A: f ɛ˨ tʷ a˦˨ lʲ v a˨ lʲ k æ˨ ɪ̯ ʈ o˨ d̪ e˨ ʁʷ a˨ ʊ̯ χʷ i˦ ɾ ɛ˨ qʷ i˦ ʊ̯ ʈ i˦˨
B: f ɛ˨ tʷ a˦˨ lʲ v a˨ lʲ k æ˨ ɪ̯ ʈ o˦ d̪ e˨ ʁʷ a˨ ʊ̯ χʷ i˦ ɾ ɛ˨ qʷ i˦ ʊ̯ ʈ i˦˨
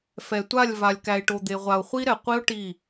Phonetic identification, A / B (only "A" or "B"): A